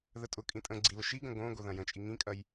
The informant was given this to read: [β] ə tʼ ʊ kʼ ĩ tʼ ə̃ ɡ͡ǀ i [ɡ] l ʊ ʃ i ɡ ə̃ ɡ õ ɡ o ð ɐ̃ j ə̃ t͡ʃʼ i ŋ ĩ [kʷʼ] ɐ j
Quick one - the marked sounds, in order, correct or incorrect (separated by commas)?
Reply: incorrect, incorrect, incorrect